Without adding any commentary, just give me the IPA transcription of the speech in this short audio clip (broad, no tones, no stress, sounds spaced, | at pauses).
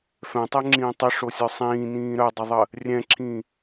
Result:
f ɛ̃ tˤ ɛ ŋ͡ǁ ĩː tˤ ə ʂ o sʲ œ sˤ ĩː n ĩː ɾ œ dˤ œ ðˤ ə | rʲ ɛ̃ ǁʰ ĩ